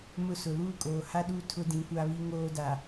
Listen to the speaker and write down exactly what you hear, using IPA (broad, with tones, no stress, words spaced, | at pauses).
mʊ˦sʊ˨ luː˦kʼoː˨ha˦ɗu˦˨ tʰʊ˦dĩ˨˦kʷa˦βi˦ ŋoː˦da˨